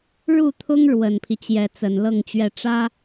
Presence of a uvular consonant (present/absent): absent